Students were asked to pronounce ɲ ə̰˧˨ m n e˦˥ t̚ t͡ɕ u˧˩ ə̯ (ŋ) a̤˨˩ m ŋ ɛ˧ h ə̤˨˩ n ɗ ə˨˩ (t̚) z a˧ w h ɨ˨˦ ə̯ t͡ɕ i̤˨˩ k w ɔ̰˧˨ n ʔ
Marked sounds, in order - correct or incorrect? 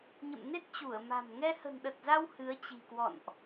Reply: incorrect, correct

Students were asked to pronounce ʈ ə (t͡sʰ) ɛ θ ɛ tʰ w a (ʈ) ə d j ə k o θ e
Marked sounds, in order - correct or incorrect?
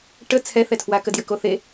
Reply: correct, incorrect

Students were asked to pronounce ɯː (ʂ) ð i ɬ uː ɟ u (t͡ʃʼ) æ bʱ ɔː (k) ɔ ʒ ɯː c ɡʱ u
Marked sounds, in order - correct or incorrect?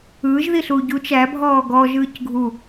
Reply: incorrect, incorrect, incorrect

